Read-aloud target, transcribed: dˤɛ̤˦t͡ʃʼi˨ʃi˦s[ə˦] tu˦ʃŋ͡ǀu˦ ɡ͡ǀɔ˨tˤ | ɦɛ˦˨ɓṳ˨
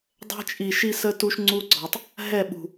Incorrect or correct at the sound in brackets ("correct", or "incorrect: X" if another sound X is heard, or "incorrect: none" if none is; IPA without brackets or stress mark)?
correct